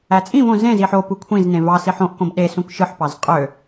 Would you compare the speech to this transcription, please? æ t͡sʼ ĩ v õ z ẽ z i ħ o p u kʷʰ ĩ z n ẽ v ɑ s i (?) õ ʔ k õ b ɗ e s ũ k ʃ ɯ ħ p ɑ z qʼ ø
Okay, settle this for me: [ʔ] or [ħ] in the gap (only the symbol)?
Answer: ħ